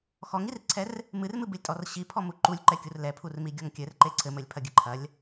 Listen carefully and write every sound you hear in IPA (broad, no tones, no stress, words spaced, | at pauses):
xɔŋirǀʰɛr | mɨrmɨbɨlʲtʼɔr ɕipʰɔmu ǃulʲǃɛkʲur lɛpʰurmiɡʲɔŋ kʲɘrǃe ǀʰɘmɘlʲpʰɐɡʲɨ ǃʰɐlʲ